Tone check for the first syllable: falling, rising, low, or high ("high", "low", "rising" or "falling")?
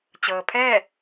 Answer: low